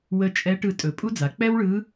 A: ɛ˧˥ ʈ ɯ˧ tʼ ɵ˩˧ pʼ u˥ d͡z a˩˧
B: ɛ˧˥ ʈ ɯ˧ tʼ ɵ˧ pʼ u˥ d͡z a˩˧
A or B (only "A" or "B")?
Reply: A